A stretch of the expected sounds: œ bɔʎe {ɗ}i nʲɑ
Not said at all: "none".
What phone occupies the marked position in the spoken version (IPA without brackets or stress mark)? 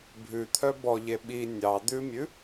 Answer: ɓ